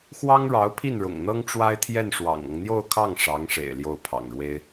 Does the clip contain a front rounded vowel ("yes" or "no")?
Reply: no